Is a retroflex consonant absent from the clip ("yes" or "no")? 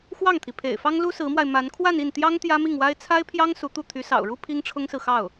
no